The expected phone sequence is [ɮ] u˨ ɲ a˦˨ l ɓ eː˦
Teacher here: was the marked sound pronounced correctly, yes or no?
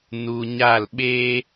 no